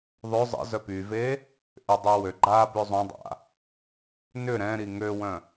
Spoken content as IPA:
ðˤø zˤə̰zœ pyve | ʔʏdˤø wø ɡ͡ǃa bøzˤõdˤa̰ | nʏ ɾɛ̃ɾi ŋøwœ̃

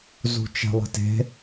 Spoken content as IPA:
zṳt͡ʃɛ̤lˠə̤te̤

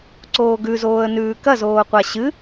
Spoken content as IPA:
ǀoːɡʉzoːə̯ nʉːkɐzoːqʷa ɕɨ

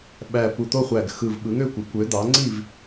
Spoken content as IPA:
ɓæ˧˩pu˧˩t̪o˥˨χʷæ˧˩ɡ xɯ˧˩v ɓɯ˩˥ŋø˥˨kʷe˩˥kʷ ø˩˥d̪ɑ˩˥ ŋ͡ǀi˥˨v

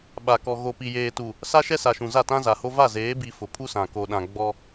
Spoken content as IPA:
ɓa˨kɔ˨ ɣo˨pi˨jeː˨tu˨ | sa˦ʃɛ˦sa˨ʃũ˨ za˦˨tã˦za˨ho˦ va˦˨zeː˨˦bi˨ fʊ˨pʰu˦sã˨ ko˨ɗã˨ ɡ͡bɔ˦

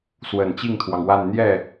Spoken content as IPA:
swə˨˩nt͡ɕi˥˩ŋt̪ʰwɑ˩ŋwa˥˧n n̪jɛ˥˩

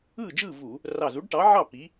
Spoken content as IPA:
ɯː˥˨d͡ʒɯː˥˨ vu˧˩˧ | rɑ˧˩zu˨˥ɖʈɑ˨˥ʕɑ˥˨ pi˨˥

